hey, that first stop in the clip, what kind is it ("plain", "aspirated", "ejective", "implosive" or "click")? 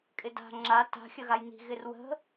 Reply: ejective